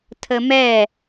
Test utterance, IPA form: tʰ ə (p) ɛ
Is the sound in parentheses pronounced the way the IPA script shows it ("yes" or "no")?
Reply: no